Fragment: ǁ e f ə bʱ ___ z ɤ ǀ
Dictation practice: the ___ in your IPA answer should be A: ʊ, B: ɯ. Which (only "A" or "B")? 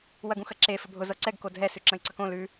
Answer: A